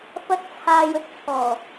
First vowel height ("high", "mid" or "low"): low